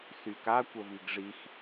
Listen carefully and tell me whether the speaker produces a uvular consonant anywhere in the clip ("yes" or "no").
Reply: no